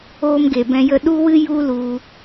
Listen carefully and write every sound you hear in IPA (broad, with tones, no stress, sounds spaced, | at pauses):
oː˦ m ɡ e˨ b ɛ̃˧ j ə˧ ɗ u˦ w ɨ˦ j u˦ l u˧